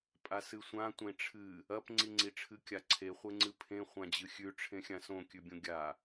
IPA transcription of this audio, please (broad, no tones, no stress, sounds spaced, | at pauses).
pʼ a s ɨ sʷ ã tʷ ẽ ʈ͡ʂʰ ɨ | ɐ p ŋ͡ǀ i ŋ͡ǀ i ʈ͡ʂʰ ɨ kʲ a ǀʰ e χʷ e ŋ͡ǀ ɨ pʰ ẽ χʷ ã d͡ʑ ɨ xʲ ʉ ʈ͡ʂʰ ẽ xʲ ã s õ kʲ ʉ bʲ õ ɡʲ a